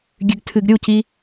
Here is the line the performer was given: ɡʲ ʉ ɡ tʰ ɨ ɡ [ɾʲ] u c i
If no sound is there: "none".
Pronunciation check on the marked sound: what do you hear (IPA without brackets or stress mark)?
ɾʲ